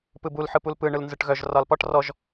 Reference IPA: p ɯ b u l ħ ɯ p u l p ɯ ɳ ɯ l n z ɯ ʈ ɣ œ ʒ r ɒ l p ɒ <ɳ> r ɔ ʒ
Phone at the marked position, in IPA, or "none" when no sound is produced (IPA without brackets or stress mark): ʈ